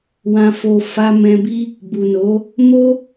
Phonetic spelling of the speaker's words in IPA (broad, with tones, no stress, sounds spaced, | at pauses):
w ã˨ f o˨ f a˧ m ɛ̃˧ b i˦ | b u˨ n o˨˦ | m o˦